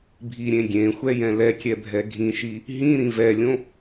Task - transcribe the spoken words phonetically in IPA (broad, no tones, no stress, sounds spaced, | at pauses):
bʱ i ɾʲ ẽ ɡʲ ẽ xʷ ɛ j ɛ̃ l ɛ kʲ ɛ bʱ ɛ ɡʱ ĩ ʃ i | ɦ ĩ ɾ ĩ v ɛ lʲ õ